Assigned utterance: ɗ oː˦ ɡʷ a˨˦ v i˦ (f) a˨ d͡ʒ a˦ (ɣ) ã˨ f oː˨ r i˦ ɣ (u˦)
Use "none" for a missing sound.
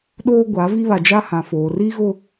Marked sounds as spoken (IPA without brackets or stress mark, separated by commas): β, h, ʊ˦